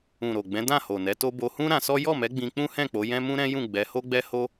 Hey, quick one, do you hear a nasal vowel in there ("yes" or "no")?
yes